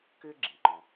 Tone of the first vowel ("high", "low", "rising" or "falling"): high